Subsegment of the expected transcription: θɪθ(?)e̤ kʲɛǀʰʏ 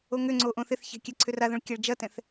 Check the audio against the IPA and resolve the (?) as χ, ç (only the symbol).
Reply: ç